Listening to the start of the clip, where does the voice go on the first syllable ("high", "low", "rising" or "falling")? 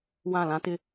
falling